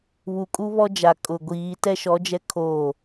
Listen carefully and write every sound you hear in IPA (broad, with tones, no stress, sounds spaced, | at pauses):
β u˨ kʼ u˦ β ɔ˦ d͡ʒ a˨ kʼ ʊ˨ ɡʷ iː˨˦ t ɛ˦ ʃ ɔ˨˦ d͡ʒ ɛ˦ kʰ oː˦˨